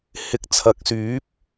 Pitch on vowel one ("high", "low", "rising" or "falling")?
rising